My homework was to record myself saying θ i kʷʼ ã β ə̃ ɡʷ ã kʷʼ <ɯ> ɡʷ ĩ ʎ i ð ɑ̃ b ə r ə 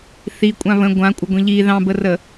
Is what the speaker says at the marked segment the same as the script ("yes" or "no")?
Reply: no